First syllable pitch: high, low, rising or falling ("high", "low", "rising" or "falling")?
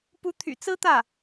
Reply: rising